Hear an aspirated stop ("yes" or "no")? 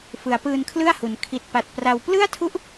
yes